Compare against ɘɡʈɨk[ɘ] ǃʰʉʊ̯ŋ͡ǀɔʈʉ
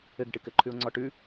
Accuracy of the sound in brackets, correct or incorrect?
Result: correct